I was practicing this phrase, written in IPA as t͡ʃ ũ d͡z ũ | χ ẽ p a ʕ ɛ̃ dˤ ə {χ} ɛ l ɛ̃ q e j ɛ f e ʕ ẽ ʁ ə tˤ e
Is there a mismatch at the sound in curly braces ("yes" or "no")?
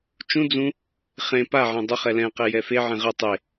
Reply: no